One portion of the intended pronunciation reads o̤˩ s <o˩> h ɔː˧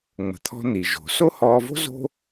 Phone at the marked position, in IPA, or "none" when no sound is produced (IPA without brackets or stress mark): o˥